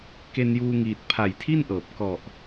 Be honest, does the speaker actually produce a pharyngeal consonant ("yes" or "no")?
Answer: no